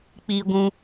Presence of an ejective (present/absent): absent